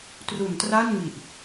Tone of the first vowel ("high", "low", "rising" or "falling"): low